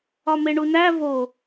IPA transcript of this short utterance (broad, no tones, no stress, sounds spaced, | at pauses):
ɒ m e ɳ u n æ v o